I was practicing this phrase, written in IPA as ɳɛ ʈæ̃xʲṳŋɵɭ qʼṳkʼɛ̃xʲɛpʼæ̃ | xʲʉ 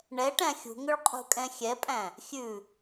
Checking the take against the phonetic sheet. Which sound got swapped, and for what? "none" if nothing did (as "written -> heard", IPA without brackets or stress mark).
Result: none